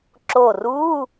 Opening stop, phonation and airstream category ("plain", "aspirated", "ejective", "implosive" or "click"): click